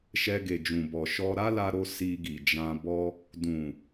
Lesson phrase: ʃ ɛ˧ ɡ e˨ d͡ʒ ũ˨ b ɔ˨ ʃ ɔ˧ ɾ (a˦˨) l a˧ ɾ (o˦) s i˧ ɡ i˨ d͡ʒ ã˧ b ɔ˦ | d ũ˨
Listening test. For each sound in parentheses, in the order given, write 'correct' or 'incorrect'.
incorrect, incorrect

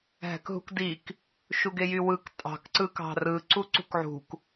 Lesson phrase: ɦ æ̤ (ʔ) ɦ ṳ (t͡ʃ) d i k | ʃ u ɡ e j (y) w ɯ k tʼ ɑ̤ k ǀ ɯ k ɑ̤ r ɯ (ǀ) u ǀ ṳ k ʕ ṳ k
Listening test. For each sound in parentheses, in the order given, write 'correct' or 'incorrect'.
incorrect, incorrect, correct, correct

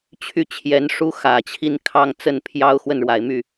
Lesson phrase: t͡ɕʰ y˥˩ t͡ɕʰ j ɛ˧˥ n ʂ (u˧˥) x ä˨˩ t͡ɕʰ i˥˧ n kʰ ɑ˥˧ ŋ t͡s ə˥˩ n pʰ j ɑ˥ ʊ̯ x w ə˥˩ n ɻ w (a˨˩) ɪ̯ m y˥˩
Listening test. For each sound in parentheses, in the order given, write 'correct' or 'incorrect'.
incorrect, correct

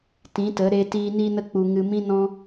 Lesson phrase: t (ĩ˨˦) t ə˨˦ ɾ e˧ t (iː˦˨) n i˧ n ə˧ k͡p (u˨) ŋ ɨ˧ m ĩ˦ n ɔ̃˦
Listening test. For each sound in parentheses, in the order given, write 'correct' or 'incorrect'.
correct, incorrect, correct

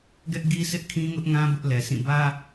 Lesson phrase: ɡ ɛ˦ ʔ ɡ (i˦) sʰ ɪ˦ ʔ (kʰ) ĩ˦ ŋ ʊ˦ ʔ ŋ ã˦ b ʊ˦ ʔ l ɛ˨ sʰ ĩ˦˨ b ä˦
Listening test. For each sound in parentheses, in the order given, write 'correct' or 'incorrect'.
correct, correct

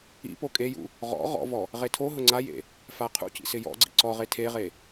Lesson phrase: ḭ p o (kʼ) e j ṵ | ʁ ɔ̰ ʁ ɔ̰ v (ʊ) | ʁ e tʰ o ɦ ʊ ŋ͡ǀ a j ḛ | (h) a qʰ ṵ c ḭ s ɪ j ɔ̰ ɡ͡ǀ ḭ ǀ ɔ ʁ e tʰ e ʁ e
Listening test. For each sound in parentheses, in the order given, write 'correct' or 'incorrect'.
correct, incorrect, incorrect

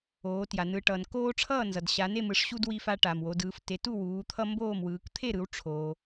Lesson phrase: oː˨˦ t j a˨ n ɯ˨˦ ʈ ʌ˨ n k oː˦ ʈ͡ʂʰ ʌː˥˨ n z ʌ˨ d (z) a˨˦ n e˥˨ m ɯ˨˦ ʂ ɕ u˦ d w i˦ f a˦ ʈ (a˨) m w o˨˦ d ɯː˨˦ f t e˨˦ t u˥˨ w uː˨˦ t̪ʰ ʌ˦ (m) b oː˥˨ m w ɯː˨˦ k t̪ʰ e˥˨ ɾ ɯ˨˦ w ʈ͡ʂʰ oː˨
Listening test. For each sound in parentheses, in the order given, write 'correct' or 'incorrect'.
incorrect, correct, correct

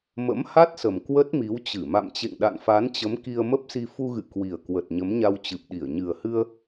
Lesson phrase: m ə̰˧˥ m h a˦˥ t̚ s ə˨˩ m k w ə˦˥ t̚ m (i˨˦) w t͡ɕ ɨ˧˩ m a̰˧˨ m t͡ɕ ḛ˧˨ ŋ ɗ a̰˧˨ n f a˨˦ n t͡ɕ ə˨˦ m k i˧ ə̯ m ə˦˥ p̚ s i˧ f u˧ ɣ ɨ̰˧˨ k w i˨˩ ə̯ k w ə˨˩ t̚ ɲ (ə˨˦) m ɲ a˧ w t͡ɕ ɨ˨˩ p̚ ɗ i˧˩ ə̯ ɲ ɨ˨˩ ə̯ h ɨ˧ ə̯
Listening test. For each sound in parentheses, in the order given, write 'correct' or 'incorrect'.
correct, correct

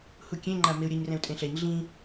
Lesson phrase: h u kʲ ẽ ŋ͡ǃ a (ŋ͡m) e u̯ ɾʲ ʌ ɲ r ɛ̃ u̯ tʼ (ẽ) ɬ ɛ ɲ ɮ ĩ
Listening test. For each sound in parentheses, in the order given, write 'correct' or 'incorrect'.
incorrect, correct

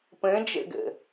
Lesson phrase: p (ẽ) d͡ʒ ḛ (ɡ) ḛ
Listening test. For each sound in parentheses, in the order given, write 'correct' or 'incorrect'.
correct, correct

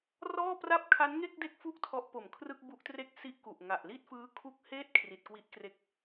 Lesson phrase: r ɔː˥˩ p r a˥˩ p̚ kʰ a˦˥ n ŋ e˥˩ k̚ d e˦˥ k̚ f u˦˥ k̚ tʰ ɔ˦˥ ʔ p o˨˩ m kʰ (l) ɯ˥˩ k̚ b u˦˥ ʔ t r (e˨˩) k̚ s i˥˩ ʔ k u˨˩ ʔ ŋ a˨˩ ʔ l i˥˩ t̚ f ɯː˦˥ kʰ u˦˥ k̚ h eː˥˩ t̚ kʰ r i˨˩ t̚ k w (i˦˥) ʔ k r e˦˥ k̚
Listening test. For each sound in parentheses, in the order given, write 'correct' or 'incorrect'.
incorrect, incorrect, correct

